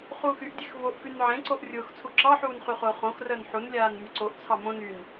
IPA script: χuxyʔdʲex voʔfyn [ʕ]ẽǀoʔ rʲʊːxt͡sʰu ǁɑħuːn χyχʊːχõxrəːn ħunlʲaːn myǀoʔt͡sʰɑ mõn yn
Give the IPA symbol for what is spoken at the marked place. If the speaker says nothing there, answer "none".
ʕ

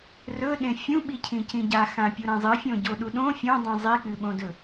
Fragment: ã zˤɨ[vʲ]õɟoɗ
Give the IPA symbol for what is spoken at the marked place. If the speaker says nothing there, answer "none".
fʲ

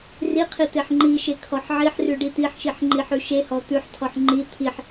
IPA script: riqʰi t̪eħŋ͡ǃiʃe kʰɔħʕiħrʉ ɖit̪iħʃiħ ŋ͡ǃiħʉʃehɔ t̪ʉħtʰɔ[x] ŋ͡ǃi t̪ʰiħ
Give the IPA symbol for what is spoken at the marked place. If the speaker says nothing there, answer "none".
ħ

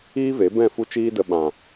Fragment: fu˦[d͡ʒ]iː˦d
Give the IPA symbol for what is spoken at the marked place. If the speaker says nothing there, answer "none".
t͡ʃ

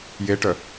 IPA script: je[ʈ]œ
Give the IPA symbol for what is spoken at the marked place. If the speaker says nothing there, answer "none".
ʈ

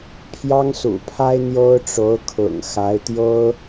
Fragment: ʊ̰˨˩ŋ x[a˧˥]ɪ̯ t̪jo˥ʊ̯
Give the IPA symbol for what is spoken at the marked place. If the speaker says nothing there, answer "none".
a˧˥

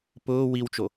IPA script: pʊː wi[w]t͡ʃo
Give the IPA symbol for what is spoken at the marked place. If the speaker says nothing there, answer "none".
w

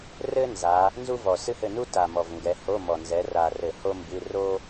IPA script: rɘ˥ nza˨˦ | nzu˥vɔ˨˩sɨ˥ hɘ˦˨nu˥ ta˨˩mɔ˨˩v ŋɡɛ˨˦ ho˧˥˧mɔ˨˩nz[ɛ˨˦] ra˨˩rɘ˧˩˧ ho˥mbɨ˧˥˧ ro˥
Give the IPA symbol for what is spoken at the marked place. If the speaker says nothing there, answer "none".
ɛ˨˦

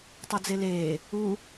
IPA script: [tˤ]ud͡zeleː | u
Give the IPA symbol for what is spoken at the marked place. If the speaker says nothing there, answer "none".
tˤ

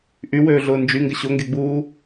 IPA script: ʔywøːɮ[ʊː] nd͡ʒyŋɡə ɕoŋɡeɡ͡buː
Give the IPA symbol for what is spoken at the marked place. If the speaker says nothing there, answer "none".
ʊː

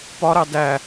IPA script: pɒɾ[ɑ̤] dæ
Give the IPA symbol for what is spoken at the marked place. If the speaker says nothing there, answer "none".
ɑ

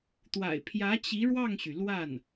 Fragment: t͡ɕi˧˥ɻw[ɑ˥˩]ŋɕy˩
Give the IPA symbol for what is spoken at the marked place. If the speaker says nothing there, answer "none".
ɑ˥˩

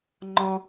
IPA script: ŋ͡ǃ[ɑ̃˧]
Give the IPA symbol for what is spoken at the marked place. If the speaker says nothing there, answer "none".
ɔ̃˧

